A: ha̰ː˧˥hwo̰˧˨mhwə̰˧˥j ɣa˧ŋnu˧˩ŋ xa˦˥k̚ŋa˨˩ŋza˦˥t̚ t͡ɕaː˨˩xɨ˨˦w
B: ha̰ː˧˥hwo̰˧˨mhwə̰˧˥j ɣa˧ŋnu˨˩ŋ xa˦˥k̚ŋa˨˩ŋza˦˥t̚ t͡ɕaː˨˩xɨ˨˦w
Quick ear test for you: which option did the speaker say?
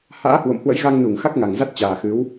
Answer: A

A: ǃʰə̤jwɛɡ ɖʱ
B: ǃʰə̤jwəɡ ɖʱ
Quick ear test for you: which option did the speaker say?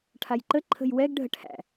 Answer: A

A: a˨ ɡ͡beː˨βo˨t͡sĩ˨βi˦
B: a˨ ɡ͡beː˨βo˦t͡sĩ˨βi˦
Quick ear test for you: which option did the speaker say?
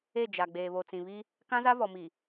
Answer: A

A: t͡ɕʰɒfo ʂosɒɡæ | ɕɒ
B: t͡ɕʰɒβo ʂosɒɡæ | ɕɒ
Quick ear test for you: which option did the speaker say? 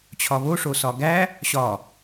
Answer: B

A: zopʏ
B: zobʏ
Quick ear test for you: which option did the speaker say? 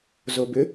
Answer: B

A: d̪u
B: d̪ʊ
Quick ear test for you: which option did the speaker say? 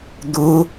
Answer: B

